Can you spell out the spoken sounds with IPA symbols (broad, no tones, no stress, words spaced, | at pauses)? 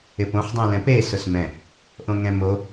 ɪpõħ dˤũlɛ̃pe sʊsmɛ̃ | ʔõŋɛ̃mo